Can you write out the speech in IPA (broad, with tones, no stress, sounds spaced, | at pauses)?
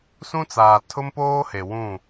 s ũ˦ t͡s aː˨ tʰ ʊ˦ m p oː˦ h e˨ w ũ˦˨